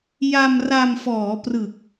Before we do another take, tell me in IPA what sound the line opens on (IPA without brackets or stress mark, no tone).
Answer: j